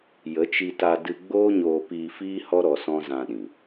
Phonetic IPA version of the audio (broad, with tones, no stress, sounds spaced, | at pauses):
j ə˨˦ t͡ʃ i˧ t a˧ d ɨ˧ ɡ͡b oː˦ ɲ oː˧ p iː˧ f iː˦ h ɔ˦ ɾ ɔ˧ s ɔ̃˦ z ã˧ ɗ ĩ˨